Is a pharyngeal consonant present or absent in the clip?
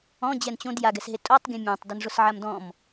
present